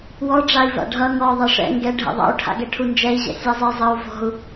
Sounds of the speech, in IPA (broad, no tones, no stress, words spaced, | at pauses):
wɔ ɖ͡ʐai̯va̰ɖʱʌ ŋɔ ðˤaʂɛ̰ ŋɡɛ ɖʱɛ̰ðˤa̰u̯ ʈʰa̰ɡɛʈʰund͡ʒɛi̯ ʑɛ̰sʲazˤɛ zˤʌu̯ vɔ̤u̯